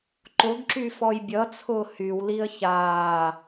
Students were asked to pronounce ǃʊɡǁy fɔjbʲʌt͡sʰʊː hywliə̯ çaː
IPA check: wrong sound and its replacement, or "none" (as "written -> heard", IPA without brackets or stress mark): none